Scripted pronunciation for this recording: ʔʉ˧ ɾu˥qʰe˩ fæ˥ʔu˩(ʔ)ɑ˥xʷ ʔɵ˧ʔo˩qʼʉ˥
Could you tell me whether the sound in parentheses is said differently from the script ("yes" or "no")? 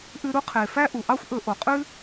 no